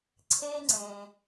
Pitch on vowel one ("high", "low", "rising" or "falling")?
high